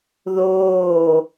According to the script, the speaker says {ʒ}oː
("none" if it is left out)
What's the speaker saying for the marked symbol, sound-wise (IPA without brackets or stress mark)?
ð